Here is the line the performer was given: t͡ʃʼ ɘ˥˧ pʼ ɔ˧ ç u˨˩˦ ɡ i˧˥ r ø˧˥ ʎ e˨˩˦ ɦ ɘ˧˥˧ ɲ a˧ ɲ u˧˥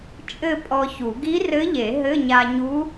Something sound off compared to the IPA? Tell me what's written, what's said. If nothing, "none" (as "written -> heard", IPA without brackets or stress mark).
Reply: ø˧˥ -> ɘ˧˥